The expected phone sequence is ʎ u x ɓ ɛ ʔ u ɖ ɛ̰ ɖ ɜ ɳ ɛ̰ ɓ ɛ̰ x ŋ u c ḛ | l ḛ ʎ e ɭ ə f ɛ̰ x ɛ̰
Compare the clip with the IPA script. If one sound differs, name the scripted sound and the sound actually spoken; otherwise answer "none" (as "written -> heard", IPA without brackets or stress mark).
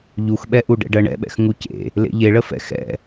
none